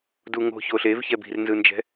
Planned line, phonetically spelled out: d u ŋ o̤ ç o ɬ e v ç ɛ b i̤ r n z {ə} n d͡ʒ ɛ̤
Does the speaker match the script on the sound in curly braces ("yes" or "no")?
no